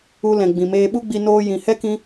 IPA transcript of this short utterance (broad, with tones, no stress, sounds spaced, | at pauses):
u˧ l ɛ̃˨ ɡ͡b ĩ˨ m eː˧ ɓ u˦ ɡ͡b i˧ n oː˧ j ĩ˨ h ɛ˦ k ĩ˧